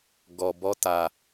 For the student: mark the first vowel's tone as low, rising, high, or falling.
low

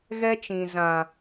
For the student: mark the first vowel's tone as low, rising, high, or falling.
high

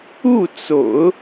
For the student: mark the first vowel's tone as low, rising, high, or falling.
falling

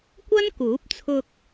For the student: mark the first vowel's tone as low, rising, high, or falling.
high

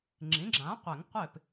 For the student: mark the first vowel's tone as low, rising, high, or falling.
rising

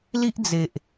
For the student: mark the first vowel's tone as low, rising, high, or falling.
high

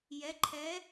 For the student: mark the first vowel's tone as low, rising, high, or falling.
rising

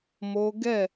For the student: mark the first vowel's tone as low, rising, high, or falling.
high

